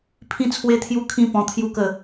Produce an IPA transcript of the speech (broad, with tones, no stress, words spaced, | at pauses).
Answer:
pʰĩ˥˧t͡sʰwe˦t̪ʰju˦ kʰĩ˦pɔ̃˧ t̪ʰju˥˧kə˥˧